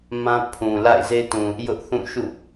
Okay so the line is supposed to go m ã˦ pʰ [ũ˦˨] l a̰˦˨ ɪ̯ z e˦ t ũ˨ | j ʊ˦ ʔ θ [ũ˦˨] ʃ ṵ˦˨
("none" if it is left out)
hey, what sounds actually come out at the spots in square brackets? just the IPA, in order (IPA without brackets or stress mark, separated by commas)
ũ˨, ũ˦˨